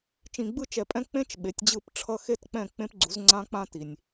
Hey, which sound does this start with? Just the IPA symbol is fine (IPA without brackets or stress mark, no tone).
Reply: t͡ʃ